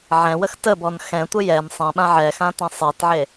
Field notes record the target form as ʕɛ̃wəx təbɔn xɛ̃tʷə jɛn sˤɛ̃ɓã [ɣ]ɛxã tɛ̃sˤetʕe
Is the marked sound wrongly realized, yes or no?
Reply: yes